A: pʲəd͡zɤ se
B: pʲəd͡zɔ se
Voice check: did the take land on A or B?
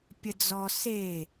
B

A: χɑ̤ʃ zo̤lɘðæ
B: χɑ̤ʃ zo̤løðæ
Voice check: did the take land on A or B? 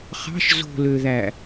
B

